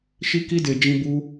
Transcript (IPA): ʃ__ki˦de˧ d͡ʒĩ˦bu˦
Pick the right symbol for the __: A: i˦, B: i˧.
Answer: A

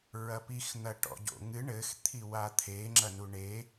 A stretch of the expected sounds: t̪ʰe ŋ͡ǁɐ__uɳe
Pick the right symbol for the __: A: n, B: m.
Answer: A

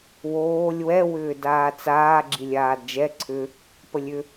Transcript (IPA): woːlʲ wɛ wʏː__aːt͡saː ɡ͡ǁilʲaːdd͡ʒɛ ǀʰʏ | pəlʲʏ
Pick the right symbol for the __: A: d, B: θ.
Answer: A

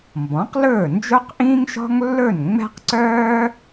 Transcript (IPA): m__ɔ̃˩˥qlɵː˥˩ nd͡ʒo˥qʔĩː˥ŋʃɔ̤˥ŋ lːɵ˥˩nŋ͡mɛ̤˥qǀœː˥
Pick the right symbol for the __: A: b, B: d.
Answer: A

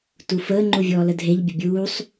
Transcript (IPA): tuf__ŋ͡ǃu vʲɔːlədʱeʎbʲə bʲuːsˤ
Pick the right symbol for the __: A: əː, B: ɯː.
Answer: A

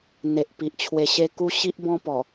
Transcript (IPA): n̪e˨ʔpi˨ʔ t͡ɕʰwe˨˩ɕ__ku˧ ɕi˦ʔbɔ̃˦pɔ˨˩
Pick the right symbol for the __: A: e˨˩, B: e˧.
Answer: B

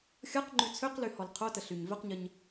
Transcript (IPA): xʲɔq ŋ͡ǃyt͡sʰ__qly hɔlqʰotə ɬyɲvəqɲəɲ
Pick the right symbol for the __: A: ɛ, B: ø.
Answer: B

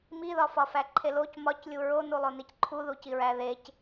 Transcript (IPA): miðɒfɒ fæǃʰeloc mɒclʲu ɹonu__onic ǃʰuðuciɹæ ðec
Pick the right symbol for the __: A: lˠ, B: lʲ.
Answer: A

